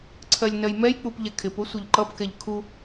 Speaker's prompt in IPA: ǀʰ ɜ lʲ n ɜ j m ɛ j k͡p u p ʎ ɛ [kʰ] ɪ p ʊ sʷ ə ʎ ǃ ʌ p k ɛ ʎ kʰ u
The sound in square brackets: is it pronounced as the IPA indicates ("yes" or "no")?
yes